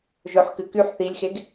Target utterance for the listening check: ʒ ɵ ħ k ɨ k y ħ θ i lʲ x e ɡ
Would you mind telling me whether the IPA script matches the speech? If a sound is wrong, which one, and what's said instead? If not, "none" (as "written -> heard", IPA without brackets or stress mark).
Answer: none